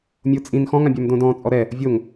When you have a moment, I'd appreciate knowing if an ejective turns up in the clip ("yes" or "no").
yes